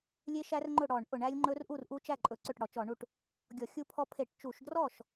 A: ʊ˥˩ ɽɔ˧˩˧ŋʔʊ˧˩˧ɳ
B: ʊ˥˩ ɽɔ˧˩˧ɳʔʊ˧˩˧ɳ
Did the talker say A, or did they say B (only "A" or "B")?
B